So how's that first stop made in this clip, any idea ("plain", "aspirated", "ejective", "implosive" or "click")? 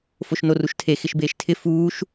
aspirated